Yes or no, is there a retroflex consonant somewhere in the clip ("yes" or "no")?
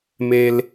no